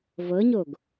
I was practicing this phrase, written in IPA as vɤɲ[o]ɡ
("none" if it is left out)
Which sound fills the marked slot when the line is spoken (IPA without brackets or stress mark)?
o